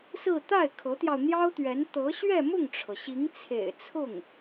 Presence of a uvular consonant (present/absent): absent